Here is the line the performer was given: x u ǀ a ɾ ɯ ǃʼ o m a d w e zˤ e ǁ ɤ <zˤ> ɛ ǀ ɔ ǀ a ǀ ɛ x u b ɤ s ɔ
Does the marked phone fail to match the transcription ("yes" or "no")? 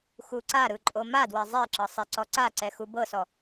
yes